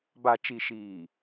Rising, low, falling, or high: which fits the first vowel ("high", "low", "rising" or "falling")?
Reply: low